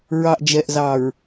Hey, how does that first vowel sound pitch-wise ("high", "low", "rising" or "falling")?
low